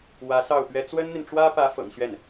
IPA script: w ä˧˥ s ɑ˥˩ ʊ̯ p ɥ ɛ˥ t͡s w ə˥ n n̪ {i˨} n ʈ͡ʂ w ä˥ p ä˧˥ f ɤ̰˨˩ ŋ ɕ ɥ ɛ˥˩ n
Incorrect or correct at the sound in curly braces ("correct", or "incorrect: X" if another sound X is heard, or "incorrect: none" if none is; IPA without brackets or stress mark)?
correct